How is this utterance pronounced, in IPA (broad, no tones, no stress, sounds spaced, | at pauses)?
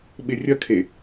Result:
ɓ ɪ rʲ ɐ kʰ e